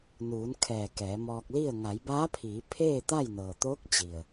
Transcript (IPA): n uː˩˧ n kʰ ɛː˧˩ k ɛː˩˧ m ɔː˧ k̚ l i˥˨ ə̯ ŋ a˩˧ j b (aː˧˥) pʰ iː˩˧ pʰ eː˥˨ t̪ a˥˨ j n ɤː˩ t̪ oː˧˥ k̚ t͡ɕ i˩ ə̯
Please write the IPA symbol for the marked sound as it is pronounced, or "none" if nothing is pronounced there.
aː˧˥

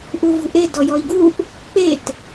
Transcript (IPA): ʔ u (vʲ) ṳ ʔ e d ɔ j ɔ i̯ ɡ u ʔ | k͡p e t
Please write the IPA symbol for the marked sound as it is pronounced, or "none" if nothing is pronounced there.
v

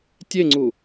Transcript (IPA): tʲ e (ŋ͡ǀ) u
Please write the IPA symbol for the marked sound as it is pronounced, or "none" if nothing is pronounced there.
ŋ͡ǀ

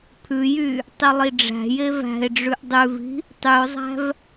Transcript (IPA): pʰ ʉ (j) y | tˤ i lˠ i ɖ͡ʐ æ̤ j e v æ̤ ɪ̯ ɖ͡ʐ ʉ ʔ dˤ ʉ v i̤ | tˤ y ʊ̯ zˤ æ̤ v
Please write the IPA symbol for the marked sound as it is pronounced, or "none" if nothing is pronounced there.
j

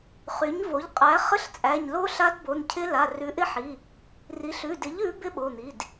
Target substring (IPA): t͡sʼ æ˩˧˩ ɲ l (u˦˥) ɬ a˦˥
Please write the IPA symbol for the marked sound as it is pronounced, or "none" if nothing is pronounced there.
o˦˥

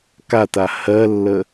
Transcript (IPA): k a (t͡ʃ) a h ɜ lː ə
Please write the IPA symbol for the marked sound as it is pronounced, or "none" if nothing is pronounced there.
t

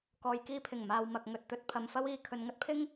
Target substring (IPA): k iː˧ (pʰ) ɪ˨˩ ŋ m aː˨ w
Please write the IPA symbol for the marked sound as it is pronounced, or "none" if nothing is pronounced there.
pʰ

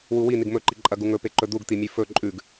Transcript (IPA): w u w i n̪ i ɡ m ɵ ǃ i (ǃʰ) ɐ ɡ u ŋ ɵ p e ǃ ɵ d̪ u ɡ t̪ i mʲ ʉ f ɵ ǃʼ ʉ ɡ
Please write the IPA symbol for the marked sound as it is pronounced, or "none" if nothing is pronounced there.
ǃʼ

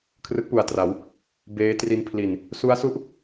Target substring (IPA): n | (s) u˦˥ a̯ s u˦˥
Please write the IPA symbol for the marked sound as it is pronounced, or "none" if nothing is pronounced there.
s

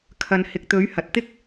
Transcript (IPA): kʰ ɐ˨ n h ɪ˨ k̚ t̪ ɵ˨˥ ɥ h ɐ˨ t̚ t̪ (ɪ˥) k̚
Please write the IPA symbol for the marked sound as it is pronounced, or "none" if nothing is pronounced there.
ɪ˥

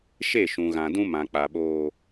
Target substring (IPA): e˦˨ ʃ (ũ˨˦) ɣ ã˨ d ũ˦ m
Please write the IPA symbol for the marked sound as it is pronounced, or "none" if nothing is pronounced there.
ũ˨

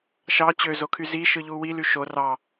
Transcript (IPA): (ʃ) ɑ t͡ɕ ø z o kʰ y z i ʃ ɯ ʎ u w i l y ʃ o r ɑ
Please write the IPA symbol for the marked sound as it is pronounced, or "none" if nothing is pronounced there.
ʃ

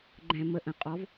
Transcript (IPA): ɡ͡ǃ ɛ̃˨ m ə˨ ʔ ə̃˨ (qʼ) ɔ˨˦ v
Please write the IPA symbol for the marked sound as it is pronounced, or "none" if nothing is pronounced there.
qʼ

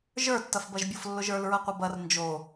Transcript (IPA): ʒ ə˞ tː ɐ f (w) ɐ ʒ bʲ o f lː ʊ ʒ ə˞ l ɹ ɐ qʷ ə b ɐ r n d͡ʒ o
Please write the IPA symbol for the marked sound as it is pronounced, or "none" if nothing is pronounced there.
b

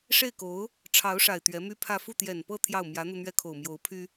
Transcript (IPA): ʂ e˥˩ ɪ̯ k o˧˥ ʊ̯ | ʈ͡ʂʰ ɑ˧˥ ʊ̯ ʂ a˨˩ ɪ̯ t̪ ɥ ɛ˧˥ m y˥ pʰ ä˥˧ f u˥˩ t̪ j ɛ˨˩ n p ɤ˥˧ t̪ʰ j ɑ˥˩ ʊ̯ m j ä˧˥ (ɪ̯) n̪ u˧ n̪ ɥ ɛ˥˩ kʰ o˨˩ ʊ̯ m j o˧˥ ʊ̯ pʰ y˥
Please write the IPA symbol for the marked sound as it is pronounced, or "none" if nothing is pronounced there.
none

